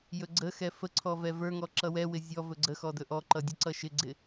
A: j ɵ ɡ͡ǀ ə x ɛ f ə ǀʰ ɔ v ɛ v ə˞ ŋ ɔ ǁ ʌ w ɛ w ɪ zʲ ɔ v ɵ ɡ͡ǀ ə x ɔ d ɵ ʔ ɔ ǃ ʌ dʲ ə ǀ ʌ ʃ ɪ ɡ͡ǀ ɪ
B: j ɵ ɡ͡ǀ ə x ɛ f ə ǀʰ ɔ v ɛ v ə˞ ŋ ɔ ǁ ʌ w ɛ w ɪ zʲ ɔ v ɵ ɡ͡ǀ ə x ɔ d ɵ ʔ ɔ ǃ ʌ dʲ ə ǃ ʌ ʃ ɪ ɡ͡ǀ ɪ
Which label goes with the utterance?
A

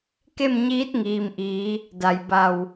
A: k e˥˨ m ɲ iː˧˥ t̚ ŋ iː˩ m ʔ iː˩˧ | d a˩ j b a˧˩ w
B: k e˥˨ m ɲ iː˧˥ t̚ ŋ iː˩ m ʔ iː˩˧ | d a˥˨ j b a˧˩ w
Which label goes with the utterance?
A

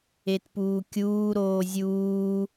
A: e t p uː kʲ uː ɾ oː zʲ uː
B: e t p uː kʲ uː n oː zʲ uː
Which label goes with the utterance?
A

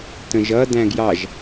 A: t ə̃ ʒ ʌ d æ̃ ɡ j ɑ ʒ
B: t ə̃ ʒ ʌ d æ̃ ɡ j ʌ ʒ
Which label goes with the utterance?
A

